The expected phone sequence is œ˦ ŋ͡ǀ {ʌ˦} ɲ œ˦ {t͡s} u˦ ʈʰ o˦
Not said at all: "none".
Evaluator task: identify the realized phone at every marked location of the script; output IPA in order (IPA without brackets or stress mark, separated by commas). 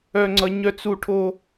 ʌ˦, t͡s